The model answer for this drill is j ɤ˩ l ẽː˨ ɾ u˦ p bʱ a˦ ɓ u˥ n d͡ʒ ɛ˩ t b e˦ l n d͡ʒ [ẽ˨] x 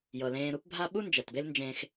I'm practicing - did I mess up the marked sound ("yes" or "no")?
no